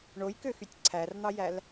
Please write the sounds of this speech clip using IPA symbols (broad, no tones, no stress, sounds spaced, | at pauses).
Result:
ɳ o j k ø x y tʲ ǀʰ æ r n̪ ɑ j æ l